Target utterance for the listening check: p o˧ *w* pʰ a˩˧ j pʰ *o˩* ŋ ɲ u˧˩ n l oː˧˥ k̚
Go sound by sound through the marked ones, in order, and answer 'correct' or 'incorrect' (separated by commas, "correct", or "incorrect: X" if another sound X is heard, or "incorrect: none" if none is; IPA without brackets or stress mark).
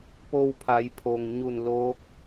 correct, correct